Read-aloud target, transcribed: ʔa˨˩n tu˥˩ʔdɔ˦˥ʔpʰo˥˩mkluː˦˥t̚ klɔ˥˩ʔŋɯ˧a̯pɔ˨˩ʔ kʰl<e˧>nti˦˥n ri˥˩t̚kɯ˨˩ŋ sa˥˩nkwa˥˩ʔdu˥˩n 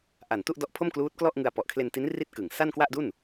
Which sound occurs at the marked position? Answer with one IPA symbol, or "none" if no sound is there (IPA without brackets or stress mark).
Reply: e˧